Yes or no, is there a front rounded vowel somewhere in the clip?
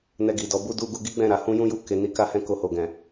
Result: no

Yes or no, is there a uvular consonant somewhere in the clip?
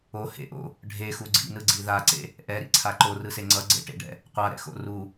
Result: yes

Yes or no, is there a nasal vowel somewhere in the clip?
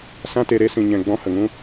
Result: yes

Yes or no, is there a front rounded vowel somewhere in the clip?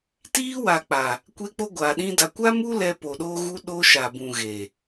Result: no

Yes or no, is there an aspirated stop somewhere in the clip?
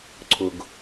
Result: yes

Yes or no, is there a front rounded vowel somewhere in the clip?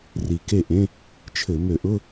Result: yes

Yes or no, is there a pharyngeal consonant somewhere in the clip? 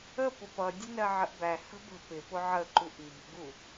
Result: yes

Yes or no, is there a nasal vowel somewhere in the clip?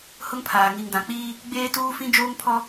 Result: yes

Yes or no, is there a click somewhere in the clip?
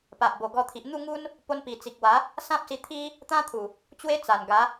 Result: no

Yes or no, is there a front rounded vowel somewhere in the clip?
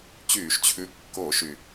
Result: yes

